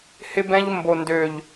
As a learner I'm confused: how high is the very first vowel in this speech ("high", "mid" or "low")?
high